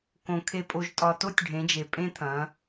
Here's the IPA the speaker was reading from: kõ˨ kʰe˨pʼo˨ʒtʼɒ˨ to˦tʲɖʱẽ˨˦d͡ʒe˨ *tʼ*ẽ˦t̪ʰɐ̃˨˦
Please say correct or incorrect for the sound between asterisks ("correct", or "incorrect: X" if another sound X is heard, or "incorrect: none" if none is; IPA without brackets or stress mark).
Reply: incorrect: pʼ